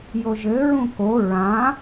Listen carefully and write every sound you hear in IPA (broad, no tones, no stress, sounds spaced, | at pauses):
j o ʒ ɘ ɹ ũ k o ɹ ã